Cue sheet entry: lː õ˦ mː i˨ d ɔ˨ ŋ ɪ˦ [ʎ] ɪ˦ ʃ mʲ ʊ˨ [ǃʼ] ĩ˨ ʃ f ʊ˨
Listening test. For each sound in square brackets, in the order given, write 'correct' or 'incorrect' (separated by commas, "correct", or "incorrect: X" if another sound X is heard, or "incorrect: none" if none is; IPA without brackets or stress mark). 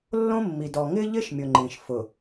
correct, incorrect: ŋ͡ǃ